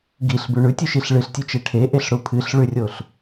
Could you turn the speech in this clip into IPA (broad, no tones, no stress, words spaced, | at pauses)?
ɡiɬbʉ ɳʉtʲʉʃiɬ ɭɨɬtʲʉt͡ʃe ʈʰeʔeɬɽu pʰɨɬɭʉrʲoɬ